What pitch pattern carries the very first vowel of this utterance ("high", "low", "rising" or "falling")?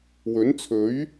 rising